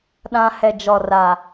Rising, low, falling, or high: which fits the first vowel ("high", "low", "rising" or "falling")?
high